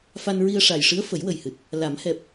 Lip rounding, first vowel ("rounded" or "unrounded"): unrounded